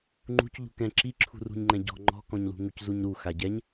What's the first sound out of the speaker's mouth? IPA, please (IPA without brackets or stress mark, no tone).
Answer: ŋ͡ǃ